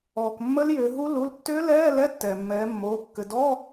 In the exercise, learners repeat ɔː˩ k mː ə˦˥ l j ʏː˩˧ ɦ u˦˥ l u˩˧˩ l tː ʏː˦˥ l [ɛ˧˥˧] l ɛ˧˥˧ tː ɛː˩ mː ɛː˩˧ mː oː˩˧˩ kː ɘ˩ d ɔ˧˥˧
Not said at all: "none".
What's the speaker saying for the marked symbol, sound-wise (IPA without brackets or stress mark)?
ɛː˧˥˧